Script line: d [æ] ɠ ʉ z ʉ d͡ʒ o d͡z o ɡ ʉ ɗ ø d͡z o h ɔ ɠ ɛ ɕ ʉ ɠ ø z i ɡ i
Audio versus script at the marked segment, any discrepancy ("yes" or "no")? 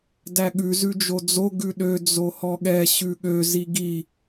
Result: no